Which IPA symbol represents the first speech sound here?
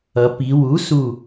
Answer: ʌ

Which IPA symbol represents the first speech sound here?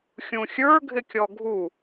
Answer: xʲ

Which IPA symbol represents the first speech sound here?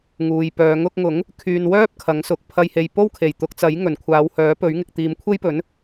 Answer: ŋ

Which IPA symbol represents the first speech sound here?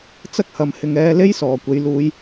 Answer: t͡s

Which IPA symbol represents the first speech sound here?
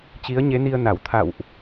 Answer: t͡ɕ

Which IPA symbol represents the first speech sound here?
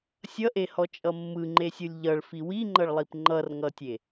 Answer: sʲ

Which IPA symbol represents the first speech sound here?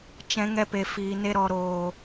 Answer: t͡ʃ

